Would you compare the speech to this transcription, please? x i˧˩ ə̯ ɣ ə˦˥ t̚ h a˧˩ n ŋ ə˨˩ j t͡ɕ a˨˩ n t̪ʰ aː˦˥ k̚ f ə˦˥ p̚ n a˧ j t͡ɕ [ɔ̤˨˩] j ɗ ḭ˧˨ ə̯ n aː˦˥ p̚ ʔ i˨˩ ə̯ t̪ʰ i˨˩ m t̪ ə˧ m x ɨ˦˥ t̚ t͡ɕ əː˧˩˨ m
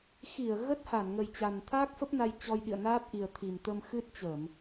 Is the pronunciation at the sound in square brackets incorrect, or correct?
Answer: incorrect